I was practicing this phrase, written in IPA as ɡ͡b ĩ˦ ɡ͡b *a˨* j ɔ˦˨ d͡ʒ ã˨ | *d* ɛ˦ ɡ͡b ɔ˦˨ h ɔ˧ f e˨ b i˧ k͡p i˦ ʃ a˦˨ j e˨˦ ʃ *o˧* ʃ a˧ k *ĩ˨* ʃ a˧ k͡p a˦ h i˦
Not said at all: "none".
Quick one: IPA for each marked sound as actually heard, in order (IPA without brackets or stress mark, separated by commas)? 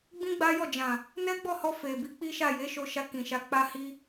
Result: a˦, n, o˧, ĩ˨